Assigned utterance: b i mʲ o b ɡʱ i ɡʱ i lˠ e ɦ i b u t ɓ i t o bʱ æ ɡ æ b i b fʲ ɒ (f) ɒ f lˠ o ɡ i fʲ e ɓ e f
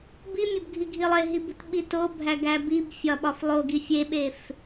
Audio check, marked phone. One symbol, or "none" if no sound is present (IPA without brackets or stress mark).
ɓ